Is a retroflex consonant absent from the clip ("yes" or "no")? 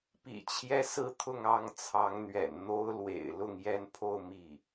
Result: yes